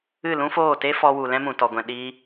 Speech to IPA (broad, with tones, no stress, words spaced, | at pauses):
ɨ˦˨lũ˦foː˦˨te˦ fɔ˦wu˧ lɛ̃˦mũ˨tɔ˨ɡʷɛ̃˨ ɗiː˦